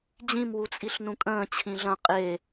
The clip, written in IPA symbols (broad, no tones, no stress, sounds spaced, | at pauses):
d͡ʑ ĩ m w u t͡sʼ i ɬ n ũ kʼ ə̃ː t͡ɕʰ ĩ ɮ ɐ̃ qʼ e